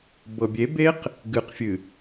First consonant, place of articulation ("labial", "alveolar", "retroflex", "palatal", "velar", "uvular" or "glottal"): labial